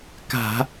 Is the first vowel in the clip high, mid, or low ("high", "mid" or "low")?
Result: low